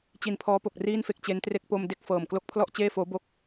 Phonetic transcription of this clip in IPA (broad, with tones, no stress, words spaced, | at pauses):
t͡ɕi˨˩npʰɔː˦˥po˨˩k̚ riː˥˩nfe˦˥k̚t͡ɕe˦˥ntre˥˩k̚ po˧m de˥˩k̚fɤː˨˩m klo˦˥k̚pʰlɔ˥˩ʔt͡ɕeː˥˩foː˦˥ bo˦˥k̚